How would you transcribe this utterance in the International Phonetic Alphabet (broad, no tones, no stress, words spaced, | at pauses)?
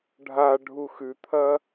ɖʱaɖʱu xʉt̪ʰɐ